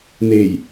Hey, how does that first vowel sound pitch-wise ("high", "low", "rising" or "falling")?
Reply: low